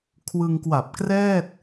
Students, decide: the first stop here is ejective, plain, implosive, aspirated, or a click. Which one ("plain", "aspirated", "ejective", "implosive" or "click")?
aspirated